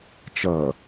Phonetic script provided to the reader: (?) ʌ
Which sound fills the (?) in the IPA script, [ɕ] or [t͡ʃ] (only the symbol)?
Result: t͡ʃ